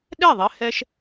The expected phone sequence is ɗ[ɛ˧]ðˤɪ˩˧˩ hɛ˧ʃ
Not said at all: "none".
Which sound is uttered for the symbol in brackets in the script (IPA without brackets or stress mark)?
ɛ˥˩